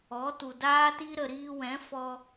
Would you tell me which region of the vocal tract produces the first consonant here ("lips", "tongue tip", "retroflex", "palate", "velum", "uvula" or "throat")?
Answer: tongue tip